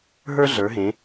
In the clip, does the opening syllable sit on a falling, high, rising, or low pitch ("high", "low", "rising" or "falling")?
high